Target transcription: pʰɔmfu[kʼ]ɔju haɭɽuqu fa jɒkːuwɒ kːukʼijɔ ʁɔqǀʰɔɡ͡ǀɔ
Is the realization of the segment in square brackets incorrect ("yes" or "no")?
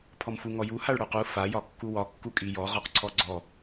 yes